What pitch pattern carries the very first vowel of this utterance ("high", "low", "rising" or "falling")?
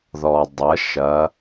low